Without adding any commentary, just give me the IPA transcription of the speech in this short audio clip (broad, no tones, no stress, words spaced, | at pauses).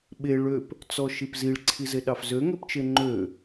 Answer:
ɓe ɭøp | t͡sɔʃipziɭ ǀʰizeɗɑfzø ŋøpt͡ʃeŋ͡ǃø